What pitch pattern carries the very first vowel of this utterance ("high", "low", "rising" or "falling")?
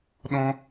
high